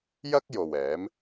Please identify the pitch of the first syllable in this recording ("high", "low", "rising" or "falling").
high